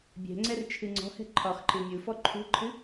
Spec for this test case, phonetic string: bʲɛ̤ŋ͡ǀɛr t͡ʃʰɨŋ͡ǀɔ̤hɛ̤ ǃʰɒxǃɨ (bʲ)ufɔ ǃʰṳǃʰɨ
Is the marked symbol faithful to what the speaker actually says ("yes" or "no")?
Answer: no